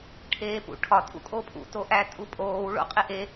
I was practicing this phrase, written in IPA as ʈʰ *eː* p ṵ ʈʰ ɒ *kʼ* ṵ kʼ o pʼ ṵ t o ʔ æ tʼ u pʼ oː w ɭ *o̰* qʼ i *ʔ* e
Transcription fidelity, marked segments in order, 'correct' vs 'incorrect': correct, incorrect: tʼ, correct, correct

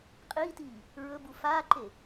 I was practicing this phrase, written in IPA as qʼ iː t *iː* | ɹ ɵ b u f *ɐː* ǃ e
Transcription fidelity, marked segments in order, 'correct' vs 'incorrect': correct, incorrect: aː

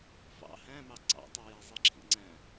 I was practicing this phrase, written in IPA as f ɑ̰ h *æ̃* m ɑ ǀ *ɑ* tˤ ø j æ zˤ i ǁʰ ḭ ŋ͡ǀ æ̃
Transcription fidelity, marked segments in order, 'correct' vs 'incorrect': correct, incorrect: ɑ̰

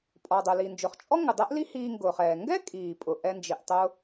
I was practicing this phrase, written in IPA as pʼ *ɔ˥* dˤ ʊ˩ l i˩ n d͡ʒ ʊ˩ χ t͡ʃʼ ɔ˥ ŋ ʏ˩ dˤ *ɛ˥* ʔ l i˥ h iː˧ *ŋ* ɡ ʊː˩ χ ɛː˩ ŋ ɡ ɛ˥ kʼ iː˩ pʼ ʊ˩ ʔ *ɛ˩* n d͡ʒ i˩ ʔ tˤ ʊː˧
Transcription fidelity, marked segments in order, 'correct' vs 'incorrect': incorrect: ɔ˩, correct, correct, incorrect: ɛ˧

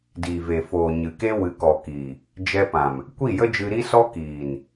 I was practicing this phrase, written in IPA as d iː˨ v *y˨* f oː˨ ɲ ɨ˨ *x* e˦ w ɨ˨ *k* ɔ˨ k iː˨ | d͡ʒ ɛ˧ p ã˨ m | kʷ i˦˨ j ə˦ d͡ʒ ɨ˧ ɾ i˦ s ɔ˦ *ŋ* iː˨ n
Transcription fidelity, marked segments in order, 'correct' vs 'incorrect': incorrect: e˨, incorrect: k, correct, incorrect: k

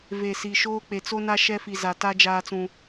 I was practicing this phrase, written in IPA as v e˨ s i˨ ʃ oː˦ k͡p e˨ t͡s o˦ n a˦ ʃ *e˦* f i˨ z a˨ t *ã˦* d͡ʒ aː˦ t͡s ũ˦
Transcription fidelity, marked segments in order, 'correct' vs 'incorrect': incorrect: ɛ˦, incorrect: a˦

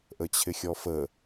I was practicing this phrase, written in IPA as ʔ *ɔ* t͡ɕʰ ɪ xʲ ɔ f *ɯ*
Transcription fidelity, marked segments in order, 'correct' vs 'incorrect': incorrect: ə, incorrect: ə

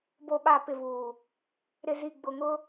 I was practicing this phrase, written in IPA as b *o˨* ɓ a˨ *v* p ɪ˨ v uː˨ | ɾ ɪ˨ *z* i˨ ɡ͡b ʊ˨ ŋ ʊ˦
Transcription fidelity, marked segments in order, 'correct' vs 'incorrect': correct, incorrect: none, correct

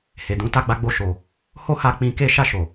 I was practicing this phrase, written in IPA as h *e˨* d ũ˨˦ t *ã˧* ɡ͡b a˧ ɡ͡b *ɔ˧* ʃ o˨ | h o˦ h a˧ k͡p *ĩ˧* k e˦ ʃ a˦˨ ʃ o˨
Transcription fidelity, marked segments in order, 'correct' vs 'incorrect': correct, incorrect: a˧, incorrect: o˧, correct

